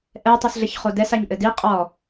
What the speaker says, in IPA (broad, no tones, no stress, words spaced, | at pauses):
ʔɛ tˤisɮɘçχodɛs aɲʔɘdi qʼɔ